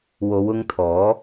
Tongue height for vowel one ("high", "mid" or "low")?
mid